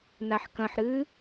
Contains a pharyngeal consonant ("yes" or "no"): yes